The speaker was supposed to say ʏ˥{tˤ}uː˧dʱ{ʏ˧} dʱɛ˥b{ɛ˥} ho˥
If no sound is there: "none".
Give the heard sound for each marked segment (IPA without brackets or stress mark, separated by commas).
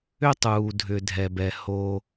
tˤ, ʏ˧, ɛ˥